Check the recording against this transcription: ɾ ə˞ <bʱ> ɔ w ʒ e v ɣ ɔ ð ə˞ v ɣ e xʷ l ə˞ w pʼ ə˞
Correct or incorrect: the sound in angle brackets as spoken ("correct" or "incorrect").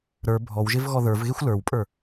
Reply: correct